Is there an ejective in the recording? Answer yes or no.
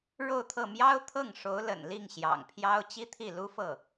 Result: no